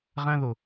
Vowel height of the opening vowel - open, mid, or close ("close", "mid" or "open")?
open